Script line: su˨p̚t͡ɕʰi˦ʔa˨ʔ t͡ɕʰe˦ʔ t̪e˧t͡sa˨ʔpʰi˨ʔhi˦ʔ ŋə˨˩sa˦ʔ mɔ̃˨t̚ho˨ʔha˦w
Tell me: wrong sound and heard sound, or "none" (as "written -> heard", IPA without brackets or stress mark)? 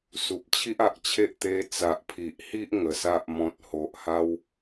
none